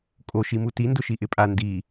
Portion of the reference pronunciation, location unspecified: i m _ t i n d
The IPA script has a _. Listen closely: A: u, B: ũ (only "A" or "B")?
A